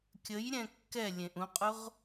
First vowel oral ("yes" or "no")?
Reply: yes